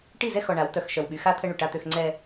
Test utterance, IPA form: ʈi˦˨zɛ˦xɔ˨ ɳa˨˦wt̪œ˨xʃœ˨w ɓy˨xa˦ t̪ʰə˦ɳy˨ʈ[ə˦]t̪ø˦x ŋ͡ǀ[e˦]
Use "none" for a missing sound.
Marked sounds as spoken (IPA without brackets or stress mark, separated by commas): a˦, ɛ˦